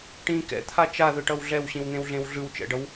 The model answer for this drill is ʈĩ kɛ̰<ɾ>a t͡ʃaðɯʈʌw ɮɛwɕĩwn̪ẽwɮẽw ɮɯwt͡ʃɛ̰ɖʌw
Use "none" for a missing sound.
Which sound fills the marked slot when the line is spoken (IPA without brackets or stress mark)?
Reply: t̪ʰ